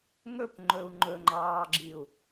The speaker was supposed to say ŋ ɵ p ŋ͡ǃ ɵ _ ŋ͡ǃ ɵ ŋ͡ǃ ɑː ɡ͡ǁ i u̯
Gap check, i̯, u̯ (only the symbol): u̯